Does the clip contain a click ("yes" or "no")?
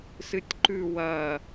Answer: yes